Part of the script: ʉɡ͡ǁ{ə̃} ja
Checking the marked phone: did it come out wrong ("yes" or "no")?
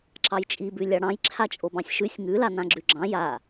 yes